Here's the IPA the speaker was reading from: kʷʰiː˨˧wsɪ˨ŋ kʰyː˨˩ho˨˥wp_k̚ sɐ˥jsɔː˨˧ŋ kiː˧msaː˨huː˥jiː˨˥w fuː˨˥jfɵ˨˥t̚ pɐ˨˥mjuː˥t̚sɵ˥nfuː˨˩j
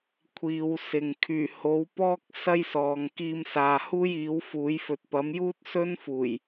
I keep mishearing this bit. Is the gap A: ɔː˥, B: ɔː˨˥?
A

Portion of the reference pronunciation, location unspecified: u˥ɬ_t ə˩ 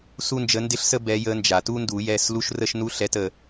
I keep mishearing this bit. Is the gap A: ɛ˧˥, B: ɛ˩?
A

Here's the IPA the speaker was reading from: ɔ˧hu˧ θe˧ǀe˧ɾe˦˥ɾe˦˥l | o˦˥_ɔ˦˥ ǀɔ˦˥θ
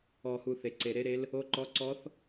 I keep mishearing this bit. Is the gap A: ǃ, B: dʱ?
A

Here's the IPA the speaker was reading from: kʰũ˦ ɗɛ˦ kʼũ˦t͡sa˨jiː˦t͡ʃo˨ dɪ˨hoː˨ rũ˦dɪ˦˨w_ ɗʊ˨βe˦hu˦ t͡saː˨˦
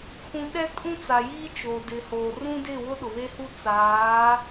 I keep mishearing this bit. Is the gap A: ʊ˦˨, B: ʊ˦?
B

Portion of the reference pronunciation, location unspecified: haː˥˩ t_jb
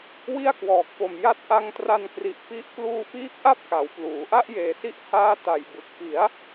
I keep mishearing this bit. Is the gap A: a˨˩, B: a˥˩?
A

